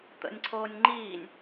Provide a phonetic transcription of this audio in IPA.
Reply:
t̪ə̰nʲǀʰoːnʲ ŋ͡ǃiːnʲ

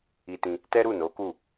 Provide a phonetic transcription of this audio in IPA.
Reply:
i˧tĩ˧ | tɛ˦ɾu˦˨no˨˦ku˦˨

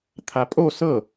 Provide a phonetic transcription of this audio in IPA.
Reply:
t̪ʰapʼo sɤ

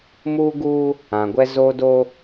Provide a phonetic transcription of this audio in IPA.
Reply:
muː˦ɡuː˦ | ã˨ɡʷɛ˦zoː˦ do˦

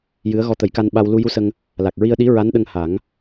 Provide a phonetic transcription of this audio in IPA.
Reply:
jɨ˧˥ə̯ ɣɔ˧t̪ə˨˩˦jka˧nɓa˧w lu˧ju˧˥sə˧ŋ | la˨˩k̚ɹi˧ə̯ɗi˧˥ ɹa˧˥nɗə˧ŋha˨˩˦ŋ

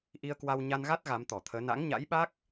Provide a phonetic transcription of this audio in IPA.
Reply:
ʔi˧ə̯kwa˧w ɲa˧nɣa˦˥t̚ ɣa˨˦mt̪ɔ˧˩t̪ʰəː˨˦ na̰˧˥ŋɲa̰˧˥jɓa˦˥k̚

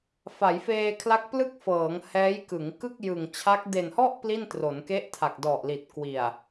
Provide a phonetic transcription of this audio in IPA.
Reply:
fa˩˦jfeː˧kʰla˦˥k̚plɯ˥˩k̚ fɤː˩˦ŋhɛː˦˥jkɯ˩˦ŋ kɯ˥˩k̚jɯ˨˩ŋt͡ɕʰa˦˥k̚ de˨˩nhɔ˥˩ʔ pli˥˩ntro˩˦nke˦˥ʔ tʰa˨˩k̚dɔ˨˩ʔli˨˩t̚ kwi˨˩a̯

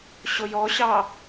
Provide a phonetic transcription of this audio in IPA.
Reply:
ɕojɔɕɑ

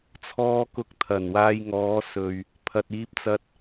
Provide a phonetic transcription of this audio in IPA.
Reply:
t͡sʰɔː˧kʊ˨˥k̚ t̪ʰɐ˨˩nwaː˧jŋɔː˨˧sɵ˨ɥ | pʰɐ˨t̚iː˧p̚t͡sɐ˧t̚

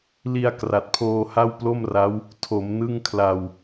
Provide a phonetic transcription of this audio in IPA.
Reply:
li˧a̯ kra˨˩t̚pʰoː˧ ha˥˩wplo˥˩mra˦˥w | tʰo˩˦m nɯ˥˩ŋkʰla˧w

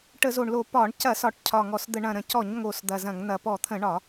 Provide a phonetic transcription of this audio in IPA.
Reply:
ʈə˧˩˧zo˨˩ɳlo˧˩˧ pɒ˧˩˧ɳ cɐ˧˩˧sɒ˨˩ʈ cʰɒ˨˩ŋɔ˨˩sd̪ə˧˩˧ ɳɐ̃˨˩ɾə̃˨˩ cɔ˧˩˧ɲŋo˨˩s d̪ɐ˨˩zɐ̃˧˩˧ŋn̪ɐ˨˩ pɔ˧˩˧t̪ʰə̃˧˩˧ɳɒ˧˩˧

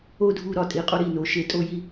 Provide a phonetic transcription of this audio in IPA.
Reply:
o˥dʱu˧˥˧ ɾɒ˧˥˧tʼi˨˦ qʼo˥ɾi˧˥˧no˨˦ʃe˧˥˧ tʼo˥ji˥

